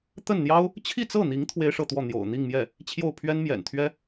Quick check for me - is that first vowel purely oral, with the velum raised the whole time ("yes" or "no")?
yes